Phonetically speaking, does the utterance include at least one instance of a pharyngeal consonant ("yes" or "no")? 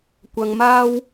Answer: no